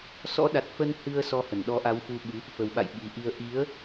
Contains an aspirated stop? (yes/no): no